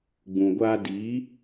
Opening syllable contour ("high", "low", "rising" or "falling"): low